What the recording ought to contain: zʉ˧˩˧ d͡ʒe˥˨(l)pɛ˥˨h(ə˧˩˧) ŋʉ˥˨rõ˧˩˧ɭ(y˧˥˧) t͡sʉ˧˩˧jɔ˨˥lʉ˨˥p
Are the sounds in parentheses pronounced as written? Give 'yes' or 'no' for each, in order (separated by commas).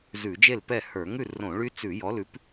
yes, no, no